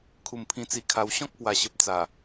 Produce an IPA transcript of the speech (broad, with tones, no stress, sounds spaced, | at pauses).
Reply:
kʰ u˨˩ m pʰ ĩ˧ t͡s i˧ kʰ a˧ w ɕ ɔ̃˦ k̚ p w a˨˩ ɕ ə˨ p̚ t͡s a˨˩